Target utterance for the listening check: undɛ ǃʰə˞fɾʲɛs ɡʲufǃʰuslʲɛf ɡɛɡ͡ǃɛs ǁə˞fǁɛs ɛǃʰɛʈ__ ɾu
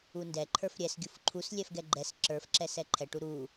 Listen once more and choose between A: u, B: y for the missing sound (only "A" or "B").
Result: A